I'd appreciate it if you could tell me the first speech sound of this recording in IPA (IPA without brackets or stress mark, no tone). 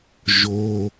ʒ